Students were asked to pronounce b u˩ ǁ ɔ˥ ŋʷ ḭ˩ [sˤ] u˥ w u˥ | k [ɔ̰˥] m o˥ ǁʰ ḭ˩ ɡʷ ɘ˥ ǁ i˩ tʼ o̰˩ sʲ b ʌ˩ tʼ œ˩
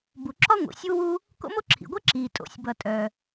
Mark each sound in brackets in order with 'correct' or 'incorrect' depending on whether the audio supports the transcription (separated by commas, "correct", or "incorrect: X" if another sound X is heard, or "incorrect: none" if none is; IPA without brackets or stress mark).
incorrect: sʲ, incorrect: o̰˥